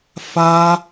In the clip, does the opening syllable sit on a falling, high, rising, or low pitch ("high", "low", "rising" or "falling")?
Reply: high